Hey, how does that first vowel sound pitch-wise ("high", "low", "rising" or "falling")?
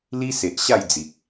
high